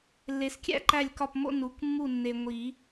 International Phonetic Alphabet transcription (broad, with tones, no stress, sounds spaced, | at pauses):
lː e˨ s kʲ æ̰˦ ǃ æ˦˨ lʲ k ɒ˦˨ p m o̰˦ n u˩˥ k mː u˦˨ nː e˨ ŋʷ i˨˩˦